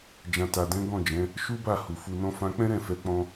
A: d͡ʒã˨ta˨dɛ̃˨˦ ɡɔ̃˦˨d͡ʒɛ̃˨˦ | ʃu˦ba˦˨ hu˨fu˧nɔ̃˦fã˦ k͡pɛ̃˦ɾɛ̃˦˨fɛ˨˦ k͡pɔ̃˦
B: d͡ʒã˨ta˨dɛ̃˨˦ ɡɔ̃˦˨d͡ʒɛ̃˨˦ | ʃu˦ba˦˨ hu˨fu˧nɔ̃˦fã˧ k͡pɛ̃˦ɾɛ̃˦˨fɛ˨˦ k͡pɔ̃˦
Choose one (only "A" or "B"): A